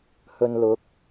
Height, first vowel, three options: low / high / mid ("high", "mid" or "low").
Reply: mid